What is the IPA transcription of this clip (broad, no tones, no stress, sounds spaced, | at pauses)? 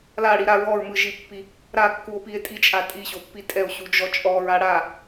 l a ɽ i ɾ a ɹ ɔ ɹ m ɯ ʒ i pː i | ɾ a kː u o̯ p i e̯ tʼ i t͡ʃʼ a tʼ i ɕ o pː i tʼ ɛ o̯ ɕ u d͡ʒ ɔ t͡ʃʼ ɔ ɹ a ɽ a